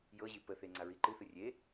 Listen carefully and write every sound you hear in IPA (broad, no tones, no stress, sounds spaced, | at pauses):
j ɤ ʑ i p ə θ e ŋ͡ǀ a ɹ i ǃ ɨ θ ɨ rʲ e